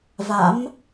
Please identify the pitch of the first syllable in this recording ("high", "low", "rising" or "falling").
rising